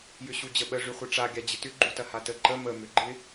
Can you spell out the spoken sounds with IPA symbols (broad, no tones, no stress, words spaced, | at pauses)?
jʏɕud͡ʑəɓə ʐyχʷɪʈ͡ʂa ɡʲad͡ʑɪtʏ ɡ͡ǃutɐhatə ǃə mə møɡ͡ǃɪ